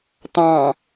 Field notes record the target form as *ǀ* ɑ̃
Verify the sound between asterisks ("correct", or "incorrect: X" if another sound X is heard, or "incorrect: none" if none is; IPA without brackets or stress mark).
incorrect: t